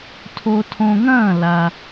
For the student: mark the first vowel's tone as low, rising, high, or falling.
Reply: low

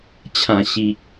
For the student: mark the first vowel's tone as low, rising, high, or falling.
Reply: low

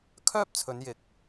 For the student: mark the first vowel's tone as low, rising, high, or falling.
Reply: high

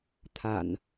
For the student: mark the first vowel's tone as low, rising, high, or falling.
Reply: low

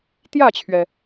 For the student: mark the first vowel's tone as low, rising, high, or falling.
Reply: falling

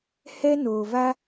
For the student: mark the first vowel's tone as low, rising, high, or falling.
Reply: high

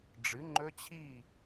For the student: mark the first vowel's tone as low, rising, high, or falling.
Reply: rising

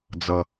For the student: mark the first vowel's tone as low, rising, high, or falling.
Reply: low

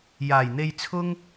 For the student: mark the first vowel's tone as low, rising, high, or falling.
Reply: low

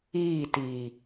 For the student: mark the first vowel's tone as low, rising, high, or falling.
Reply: falling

